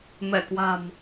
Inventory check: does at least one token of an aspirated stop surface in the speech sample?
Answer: no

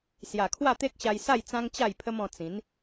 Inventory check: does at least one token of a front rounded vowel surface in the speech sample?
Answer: no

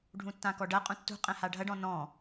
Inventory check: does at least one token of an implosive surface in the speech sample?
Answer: no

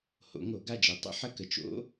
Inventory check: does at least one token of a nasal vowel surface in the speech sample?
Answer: no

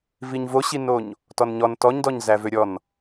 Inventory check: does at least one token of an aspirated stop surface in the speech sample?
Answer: no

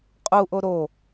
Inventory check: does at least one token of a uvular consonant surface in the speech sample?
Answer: yes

